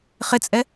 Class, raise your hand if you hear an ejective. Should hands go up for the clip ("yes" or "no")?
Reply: yes